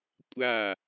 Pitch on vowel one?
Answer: falling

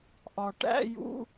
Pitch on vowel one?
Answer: low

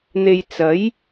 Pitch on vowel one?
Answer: low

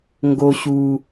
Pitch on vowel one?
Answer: low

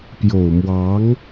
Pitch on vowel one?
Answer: low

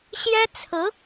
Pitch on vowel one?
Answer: high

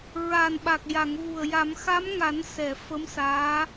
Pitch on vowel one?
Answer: low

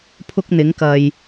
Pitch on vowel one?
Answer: high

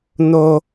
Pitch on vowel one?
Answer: high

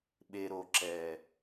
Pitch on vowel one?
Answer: low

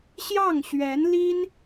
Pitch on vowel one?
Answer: falling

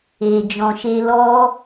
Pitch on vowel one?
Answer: low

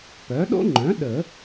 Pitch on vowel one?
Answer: rising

